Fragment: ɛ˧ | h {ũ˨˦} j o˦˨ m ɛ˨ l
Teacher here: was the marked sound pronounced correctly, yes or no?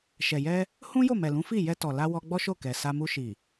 no